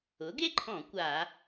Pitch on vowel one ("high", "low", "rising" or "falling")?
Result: rising